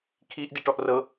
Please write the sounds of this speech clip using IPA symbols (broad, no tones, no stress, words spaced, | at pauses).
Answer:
kʰiʔ diʈɔʔrɤ